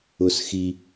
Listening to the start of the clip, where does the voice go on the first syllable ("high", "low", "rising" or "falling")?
high